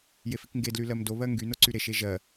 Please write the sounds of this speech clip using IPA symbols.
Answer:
j e f i k ŋ ɡ e d l y l ɜ m d o β ɜ ŋ ɡ y n o ǀ y ɾ e ʃ e ʒ ɜ

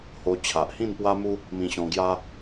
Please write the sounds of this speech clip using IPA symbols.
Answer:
h o˧ t͡ɕʰ a˨ ʔ h ĩ˥˧ n p w a˦ m u˦ | m ĩ˧ ɕ ɔ̃˧ ɡ j a˦

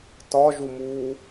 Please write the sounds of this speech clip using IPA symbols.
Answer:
t ɒ ʒ u m uː

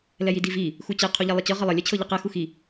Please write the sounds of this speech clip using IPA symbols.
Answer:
l ɛ j i d i v i | x u t͡ɕ ɛ qʰ u ʎ ɛ lˠ i t͡ɕ ɤ ʁ ə lˠ ə lʲ ɛ t͡ɕʰ ɤ ʎ i q ɛ x u x i

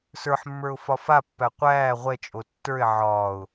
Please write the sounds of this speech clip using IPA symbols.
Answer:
s ə˞ ħ mː ə˞ ʊ̯ f ɒ f a pː æ qʷ æː ʁʷ ɛ t͡ʃʼ o tː ə˞ ɪ̯ ʕ ɒː ʊ̯

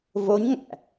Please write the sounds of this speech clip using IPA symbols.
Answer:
v o ɲ ŋ æ̰

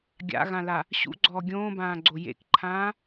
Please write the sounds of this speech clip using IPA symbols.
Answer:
ɡʲ a̰ ɣ ã l a | ɕ ṵ ɡ͡ǀ ɔː ɡʲ õː b ãː ɡ͡ǀ o j ḛ k ǃʰ ãː

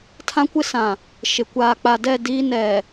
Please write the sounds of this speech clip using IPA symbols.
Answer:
tʰ ã˦ kʷ ɪ˦ s ã˨ | ʃ ɪ˨ kʷ aː˨ k͡p a˨ d ɛ˦˨ d iː˦ n ɛ˨

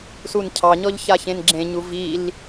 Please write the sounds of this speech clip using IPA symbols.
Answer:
s u n cʰ ɑ ɲ ɔ ʎ ç a ç ẽ n ɡ͡ǁ ẽ ɲ u v i l

